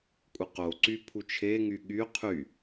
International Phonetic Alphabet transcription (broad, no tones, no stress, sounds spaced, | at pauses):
kʷʼ ɯ q o ǀ y pʰ u t͡ʃʰ e ŋ y ɠ y qʰ y